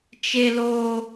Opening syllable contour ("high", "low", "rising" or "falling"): high